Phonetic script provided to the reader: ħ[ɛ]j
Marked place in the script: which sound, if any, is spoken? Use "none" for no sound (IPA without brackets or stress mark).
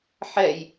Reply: ɛ